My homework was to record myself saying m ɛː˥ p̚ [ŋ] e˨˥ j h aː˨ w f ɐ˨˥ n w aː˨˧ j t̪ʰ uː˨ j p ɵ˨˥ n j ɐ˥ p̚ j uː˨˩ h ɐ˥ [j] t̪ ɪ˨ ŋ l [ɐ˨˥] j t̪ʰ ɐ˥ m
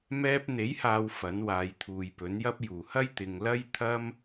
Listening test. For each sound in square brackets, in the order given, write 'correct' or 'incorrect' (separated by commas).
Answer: incorrect, correct, incorrect